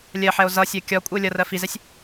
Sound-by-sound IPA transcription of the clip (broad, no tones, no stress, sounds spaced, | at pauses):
lʲ ɜ ħ ɛ o̯ z ʌ sʲ ɜ kʲ ɒ kʷʼ ɪ o̯ lʲ ʌ r ɜ f i z ɛ sʲ